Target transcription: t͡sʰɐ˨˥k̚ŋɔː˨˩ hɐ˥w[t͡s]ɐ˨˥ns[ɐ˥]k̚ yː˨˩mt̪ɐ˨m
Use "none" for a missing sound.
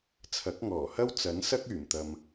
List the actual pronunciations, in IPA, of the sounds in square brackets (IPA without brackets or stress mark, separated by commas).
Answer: t͡s, ɐ˥